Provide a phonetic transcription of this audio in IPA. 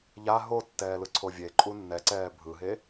ʎ a ɦ o tː ɛː l ɯ ǀʰ o vʲ e ǃʼ u nː ɛ ǀ ɛː bʱ ɯ ɦ e

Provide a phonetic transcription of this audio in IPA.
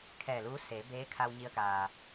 kʰ ɛː˧˩ l uː˧˥ s eː˩˧ b eː˧˥ kʰ a˧ w ɲ i˧ ə̯ k aː˩

